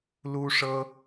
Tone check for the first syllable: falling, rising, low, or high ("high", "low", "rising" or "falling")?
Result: high